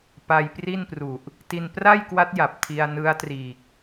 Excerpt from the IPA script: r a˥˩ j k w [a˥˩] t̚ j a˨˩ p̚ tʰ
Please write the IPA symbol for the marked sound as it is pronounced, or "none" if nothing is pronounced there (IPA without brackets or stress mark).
a˦˥